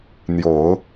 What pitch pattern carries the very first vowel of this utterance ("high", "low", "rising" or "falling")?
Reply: low